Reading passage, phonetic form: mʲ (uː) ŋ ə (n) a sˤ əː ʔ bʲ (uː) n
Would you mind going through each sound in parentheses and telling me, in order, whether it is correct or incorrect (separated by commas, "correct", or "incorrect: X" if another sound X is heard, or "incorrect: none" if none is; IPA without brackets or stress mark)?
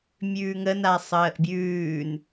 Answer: incorrect: ʉː, correct, incorrect: ʉː